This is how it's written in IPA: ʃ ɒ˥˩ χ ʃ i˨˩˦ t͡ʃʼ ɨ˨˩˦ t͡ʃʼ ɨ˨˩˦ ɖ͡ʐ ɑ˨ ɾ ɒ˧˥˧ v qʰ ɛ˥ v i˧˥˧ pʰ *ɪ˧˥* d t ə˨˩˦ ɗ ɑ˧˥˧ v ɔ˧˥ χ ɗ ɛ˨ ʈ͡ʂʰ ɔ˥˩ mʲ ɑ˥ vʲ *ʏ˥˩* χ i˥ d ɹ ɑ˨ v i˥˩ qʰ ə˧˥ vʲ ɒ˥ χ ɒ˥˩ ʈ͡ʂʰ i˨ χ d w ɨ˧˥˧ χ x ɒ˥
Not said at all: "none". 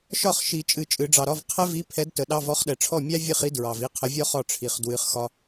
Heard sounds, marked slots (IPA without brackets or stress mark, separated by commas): ɛ˧˥, ɨ˥˩